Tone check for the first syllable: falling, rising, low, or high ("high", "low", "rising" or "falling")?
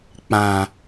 low